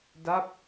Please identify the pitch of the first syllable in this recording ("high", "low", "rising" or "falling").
falling